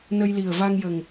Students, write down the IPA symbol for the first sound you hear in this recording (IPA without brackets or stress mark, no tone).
n